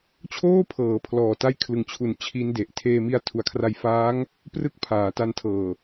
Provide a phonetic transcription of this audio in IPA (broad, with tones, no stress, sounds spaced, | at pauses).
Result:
t͡ɕʰ oː˥˩ pʰ ɤː˩˦ pʰ l ɔː˨˩ t a˥˩ j kʰ l ɯ˨˩ ŋ t͡ɕʰ u˨˩ n t͡ɕʰ i˦˥ n d e˨˩ ʔ tʰ eː˧ m i˦˥ a̯ tʰ u˨˩ a̯ kʰ r a˧ j f aː˦˥ ŋ | p r ɯ˥˩ k̚ pʰ aː˩˦ t a˧ n tʰ ɤː˨˩